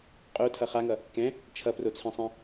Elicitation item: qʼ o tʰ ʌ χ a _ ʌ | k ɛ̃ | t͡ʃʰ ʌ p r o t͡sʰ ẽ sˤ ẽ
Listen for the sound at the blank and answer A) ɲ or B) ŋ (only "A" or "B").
B